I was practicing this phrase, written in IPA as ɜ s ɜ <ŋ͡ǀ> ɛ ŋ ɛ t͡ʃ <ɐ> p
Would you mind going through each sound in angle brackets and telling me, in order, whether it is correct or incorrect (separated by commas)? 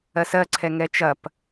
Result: incorrect, correct